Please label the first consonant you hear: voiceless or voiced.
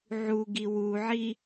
voiced